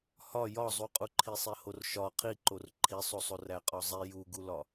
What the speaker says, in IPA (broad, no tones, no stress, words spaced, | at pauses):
hɒ jɒzˤuqʼuǃʰi sˤehorʃɒ qʰiǃor ǃʰisˤosˤo ræqʼɒzˤi juɡulɒ